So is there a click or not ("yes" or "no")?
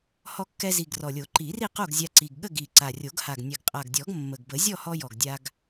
yes